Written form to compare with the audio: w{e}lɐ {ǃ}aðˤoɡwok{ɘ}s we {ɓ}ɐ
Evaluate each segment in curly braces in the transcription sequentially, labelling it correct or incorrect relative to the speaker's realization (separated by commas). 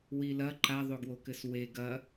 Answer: incorrect, correct, correct, incorrect